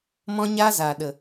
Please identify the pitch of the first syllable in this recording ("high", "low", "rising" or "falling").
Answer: high